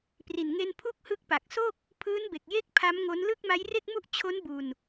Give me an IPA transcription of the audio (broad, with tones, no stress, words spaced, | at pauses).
pri˨˩nŋe˧n pʰu˥˩k̚hɯ˦˥k̚ pa˨˩k̚so˥˩k̚ | pʰɯː˦˥nbe˨˩k̚je˦˥k̚ pʰa˦˥mŋo˦˥n lɯ˥˩k̚ ma˦˥jre˥˩k̚mu˥˩ʔ t͡ɕʰo˦˥nbu˧n